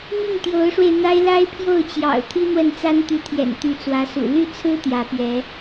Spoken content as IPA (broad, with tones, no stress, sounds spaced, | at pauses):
m i˥˩ ŋ t̪ j o˧˥ ʊ̯ ʂ w e˧ ɪ̯ n̪ a˥ ɪ̯ l a˥ ɪ̯ pʰ j o˥˩ ʊ̯ t͡ɕ j ɑ̰˨˩ ʊ̯ t̪ʰ i˥ n̪ w ə˥˩ n t͡s a˥ n t̪ y˧˥ t̪ʰ j ɛ̰˨˩ n t̪ y˧˥ t͡s w ä˧˥ s ṵ˨˩ l y˥˩ t͡sʰ ɹ̩˥ t̪ j ä˧˥ p ɥ ɛ˧˥